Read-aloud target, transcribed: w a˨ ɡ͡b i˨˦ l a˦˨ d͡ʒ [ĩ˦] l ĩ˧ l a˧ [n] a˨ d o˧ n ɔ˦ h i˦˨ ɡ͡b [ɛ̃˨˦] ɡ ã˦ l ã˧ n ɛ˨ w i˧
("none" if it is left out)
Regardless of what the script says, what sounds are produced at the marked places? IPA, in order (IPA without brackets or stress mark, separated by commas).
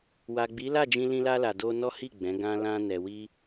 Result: ĩ˧, l, ɛ̃˨˦